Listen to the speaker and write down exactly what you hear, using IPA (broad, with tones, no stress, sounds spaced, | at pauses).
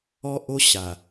ɔ˦ ʔ o˦ ɕ a˨